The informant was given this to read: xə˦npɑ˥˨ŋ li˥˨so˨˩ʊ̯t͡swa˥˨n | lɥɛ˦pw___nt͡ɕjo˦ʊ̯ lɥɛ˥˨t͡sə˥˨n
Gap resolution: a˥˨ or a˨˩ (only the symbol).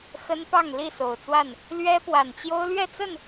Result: a˨˩